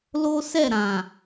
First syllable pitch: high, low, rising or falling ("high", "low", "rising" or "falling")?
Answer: high